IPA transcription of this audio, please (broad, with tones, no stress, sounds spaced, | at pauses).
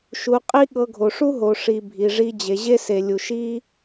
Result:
ʃ u˧ qʼ i˦ ɠ ɤ˧ ɡʱ o˨ ʂ u˦ ɦ o˨ ʂ i˨ bʱ i˨ ʐ i˧ d͡ʑ e˨ ʑ e˦ s e˨ lʲ u˨ ʃ i˦